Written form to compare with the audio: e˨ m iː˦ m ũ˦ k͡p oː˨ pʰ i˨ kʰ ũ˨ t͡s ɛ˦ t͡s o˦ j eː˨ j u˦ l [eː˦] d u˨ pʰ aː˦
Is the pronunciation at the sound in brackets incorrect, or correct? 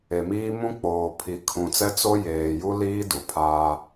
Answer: incorrect: iː˦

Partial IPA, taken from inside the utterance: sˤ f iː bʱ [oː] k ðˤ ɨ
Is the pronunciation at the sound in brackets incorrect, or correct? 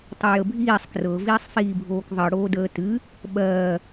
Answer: correct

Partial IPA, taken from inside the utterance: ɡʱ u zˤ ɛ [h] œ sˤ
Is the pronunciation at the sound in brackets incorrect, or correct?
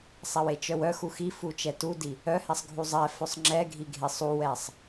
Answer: incorrect: f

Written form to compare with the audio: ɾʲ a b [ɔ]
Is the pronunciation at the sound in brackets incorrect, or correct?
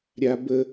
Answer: incorrect: ə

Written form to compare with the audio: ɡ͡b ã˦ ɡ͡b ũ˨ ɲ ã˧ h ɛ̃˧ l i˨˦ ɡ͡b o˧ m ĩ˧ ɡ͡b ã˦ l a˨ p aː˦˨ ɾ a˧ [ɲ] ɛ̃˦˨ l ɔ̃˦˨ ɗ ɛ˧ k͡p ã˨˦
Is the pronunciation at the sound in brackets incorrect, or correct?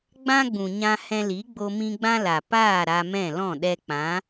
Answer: incorrect: m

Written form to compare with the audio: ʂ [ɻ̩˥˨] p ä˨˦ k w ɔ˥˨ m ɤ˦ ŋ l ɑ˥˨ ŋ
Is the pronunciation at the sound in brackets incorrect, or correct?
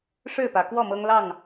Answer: correct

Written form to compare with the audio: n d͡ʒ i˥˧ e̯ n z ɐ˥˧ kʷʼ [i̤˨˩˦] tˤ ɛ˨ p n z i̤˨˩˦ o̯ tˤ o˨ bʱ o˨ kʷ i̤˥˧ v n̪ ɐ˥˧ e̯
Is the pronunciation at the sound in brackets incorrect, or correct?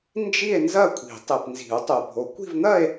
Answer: correct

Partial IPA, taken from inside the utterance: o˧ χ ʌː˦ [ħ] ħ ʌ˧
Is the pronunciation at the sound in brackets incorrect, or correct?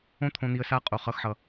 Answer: incorrect: x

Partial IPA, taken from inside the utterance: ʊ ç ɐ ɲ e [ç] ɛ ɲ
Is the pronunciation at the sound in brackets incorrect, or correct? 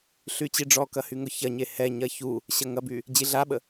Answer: incorrect: h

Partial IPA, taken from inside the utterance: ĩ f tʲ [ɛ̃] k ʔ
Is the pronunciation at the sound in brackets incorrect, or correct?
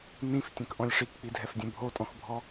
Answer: correct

